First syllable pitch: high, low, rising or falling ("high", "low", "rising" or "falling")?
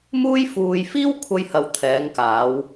high